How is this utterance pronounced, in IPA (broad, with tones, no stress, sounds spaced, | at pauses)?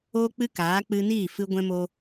oː˦ k͡p ɨ˦ k aː˨˦ k͡p ɨ˧ n iː˦˨ f ɨ˧ ɡʷ ɛ̃˧ m o˧